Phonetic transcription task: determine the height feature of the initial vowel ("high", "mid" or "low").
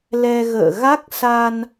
mid